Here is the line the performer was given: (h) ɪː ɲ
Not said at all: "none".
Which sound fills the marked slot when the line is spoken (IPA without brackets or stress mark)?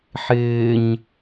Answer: ħ